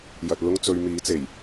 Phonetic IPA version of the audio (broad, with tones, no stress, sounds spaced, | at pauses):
j ɐ˨ t̚ l ʊ˥ ŋ t͡s ɵ˧ ɥ m iː˨˥ t͡s e˨˩ j